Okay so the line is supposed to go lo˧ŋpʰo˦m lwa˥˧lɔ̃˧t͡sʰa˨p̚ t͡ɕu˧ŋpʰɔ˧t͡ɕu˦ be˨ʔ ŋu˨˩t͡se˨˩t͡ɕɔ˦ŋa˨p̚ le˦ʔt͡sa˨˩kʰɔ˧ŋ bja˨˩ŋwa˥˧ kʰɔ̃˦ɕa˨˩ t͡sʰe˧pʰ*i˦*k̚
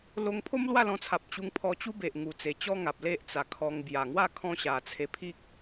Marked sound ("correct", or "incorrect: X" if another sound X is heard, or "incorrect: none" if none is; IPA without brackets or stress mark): correct